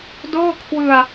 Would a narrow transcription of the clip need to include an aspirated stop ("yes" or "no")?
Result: yes